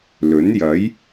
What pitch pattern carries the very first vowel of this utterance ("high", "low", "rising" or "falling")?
rising